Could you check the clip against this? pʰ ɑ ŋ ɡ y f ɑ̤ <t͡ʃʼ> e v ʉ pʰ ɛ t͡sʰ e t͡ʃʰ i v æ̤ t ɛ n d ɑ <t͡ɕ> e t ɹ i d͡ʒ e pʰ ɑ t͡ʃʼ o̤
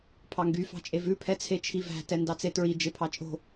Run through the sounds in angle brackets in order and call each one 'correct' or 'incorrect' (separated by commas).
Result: correct, incorrect